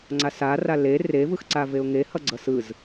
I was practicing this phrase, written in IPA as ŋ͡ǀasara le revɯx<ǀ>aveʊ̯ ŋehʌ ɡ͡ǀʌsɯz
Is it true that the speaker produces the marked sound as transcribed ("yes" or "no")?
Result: yes